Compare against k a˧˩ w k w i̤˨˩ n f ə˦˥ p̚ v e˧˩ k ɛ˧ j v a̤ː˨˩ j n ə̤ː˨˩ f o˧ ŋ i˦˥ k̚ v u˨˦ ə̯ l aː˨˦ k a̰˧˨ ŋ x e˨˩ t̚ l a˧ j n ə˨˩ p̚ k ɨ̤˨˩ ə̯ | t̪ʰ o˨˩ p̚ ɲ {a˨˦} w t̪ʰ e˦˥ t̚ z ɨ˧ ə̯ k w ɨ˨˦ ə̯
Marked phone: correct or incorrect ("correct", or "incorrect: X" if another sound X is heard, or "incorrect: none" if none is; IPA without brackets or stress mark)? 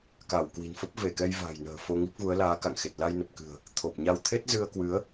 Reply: incorrect: a˧